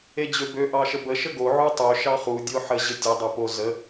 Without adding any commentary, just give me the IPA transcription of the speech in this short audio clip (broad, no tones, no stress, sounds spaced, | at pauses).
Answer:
e d͡ʑ ø b ø ʔ ɑ ʃ ə b ə ʃ ə ɡ o ʕ u tˤ ø ʃ ɑ χ u dʲ o ħ ə ʑ ɘ tʲ ɘ dˤ o p o z ə